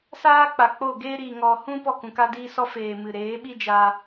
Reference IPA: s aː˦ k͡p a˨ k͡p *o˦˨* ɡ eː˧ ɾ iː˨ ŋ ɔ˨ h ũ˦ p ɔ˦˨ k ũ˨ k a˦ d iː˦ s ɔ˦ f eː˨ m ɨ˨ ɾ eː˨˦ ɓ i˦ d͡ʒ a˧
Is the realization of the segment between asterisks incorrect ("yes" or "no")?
no